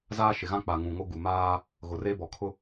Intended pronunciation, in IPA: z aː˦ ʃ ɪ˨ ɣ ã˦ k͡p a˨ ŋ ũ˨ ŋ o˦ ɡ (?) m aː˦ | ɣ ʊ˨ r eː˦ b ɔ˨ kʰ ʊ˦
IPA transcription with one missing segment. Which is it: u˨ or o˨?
u˨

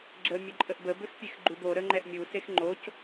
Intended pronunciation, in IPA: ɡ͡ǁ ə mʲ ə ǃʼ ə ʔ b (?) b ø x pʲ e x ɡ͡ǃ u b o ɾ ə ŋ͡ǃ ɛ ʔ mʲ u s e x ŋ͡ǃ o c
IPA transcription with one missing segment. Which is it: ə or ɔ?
ə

